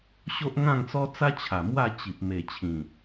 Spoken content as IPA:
ɕo˦ʔŋã˥˧ŋt͡sɔ˦t͡sa˦ t͡ɕʰa˨˩mwa˥˧t͡ɕi˨p̚ me˨˩t͡ɕʰĩ˨˩

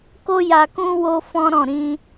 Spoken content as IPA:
ko˦ja˧kũ˦ wo˦fɔ̃˦ɾɔ̃˦˨ ɾĩ˧

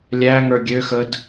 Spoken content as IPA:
lʲæŋə˞ ɡʲøxəd

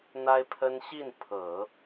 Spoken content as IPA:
n̪a˥ɪ̯pʰə˥n ɕi˥˩npʰɤ˨˩˦

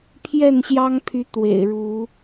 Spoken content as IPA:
pʰjɛ˥˨nɕjɑ˦ŋpʰy˨˦ t̪wḛ˨˩ɪ̯ɻu˨˦

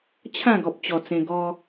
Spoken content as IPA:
t͡ɕʰã˥˧ɡɔ˨p̚t͡ɕɔ˨˩t͡sẽ˧ ɡɔ˧

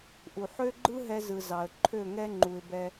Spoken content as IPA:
ʔu˨ħø˦ɡ͡ǃɯ˦ ɦɛ˧zɯ˨ zɑ˨ə̯ǃʰø˦˨ŋɛ˦ ŋ͡ǃu˨ɪ̯bɛ˧

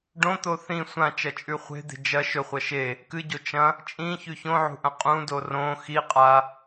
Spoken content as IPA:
ɖõt̪o θĩ sʷãt͡ʃɐt͡ʃʼʉ χʷe̤d̪e̤ d͡ʒɐ ʃɵχʷɐ ʃe | kɨɟo t͡ʃɐ̃ | t͡ʃʼĩçʉ çõʕṳʔɐ̃ qʼũdo rõ xiqʼa

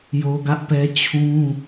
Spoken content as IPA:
jo˦ɡä˦ʔpɛ˦ t͡ɕʰũ˦

